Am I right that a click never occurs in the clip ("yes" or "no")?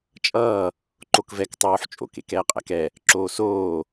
no